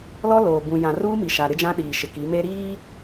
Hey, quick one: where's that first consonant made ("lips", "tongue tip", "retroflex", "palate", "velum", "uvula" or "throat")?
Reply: tongue tip